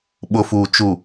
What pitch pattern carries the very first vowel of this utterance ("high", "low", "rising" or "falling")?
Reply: low